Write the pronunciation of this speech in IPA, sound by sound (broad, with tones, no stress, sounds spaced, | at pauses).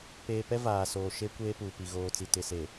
p eː˨ p ɛ˦ v aː˨ s oː˨ ʃ e˦ kʷ eː˦ p uː˨ p i˨ ɣ oː˨ t͡s i˨ t ɪ˨ s e˨